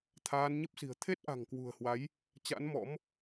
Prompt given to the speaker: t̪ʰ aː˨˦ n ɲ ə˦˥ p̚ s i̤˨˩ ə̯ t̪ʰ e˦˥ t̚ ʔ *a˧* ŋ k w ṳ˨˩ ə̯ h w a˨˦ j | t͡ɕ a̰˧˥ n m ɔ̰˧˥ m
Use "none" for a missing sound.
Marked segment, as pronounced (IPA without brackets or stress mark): a̤˨˩